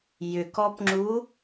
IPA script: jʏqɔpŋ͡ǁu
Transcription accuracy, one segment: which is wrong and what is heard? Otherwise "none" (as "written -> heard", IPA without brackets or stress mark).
q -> k